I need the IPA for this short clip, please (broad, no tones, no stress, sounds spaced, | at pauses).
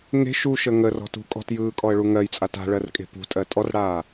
ŋ e̤ ʃ u ʃ ə ŋ ə r ɔ̤ t ṳ kʼ ɔ̤ t j ɯː kʼ ɔ ə̯ ɭ u ŋ ɜ j t͡sʼ a t a̤ ɭ ɜ r kʼ e̤ p ṳ tʼ ɜ tʼ ɔ r ɽ aː